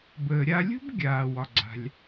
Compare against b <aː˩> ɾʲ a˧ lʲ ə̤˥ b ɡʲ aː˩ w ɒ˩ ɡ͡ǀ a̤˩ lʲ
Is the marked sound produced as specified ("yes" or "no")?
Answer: no